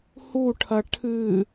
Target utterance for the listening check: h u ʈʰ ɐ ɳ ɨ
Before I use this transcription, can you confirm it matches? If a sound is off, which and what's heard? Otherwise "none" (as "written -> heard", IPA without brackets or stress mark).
ɳ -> ʈʰ